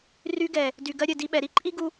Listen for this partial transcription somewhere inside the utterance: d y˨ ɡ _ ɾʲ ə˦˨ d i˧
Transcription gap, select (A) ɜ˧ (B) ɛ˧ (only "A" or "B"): A